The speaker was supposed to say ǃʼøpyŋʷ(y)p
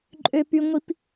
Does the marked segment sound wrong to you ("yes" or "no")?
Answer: yes